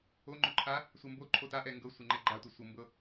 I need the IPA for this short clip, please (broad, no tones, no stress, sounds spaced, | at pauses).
o ŋ͡ǃ ɵ ǃʰ a | sʷ ə m b o ǃʰ o t a ʔ ɛ ŋ ɡ ɤ sʷ ɛ ŋ͡ǃ ɛ ɡ͡ǃ a tʷ ɛ sʷ ɤ m b ɤ